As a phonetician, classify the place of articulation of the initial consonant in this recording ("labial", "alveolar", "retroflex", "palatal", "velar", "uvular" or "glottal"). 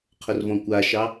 uvular